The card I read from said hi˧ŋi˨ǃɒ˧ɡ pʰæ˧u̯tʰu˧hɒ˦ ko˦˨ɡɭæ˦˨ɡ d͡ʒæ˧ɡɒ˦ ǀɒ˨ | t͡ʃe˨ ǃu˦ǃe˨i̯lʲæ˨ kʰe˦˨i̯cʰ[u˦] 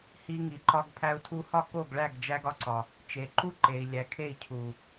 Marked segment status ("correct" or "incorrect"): incorrect